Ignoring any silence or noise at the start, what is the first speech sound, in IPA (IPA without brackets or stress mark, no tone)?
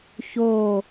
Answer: ç